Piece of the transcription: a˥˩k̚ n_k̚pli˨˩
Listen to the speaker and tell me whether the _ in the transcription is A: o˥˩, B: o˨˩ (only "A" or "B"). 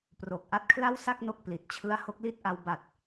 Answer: A